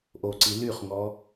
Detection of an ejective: absent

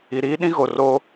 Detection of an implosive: present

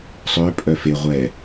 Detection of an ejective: present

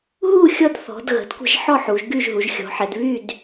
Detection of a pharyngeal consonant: present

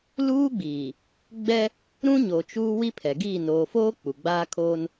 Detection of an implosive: absent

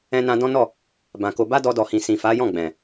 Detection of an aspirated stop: absent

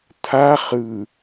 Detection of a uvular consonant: present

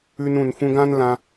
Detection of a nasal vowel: present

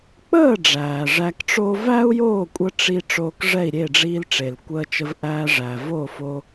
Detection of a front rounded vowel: absent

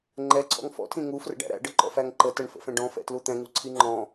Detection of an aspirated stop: present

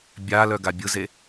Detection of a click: absent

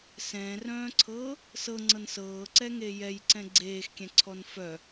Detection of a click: present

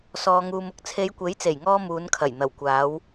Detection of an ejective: absent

